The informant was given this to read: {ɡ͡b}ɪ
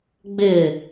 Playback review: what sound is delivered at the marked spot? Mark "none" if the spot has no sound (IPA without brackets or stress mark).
ɡ͡b